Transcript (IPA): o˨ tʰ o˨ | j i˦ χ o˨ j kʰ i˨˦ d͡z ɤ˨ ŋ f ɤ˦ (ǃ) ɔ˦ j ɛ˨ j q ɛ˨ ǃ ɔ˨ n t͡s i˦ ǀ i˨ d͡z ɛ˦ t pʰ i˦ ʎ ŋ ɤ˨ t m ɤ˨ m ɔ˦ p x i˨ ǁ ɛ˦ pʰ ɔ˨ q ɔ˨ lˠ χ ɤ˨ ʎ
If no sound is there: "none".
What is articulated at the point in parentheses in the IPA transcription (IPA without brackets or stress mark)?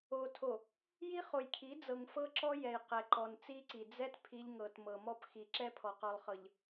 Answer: ǁ